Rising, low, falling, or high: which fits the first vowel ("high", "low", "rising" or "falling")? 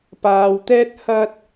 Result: low